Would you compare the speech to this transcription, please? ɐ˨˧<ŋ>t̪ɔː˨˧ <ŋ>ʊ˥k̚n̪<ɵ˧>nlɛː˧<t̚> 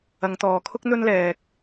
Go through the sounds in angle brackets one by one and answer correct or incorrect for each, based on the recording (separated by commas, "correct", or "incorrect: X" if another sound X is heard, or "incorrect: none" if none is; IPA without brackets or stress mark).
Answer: correct, incorrect: kʰ, incorrect: ɵ˥, incorrect: k̚